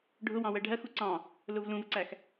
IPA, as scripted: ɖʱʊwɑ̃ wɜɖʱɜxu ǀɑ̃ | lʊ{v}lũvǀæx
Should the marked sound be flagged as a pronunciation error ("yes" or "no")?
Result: no